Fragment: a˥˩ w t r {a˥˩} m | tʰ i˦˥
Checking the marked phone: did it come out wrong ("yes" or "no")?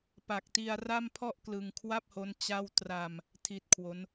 yes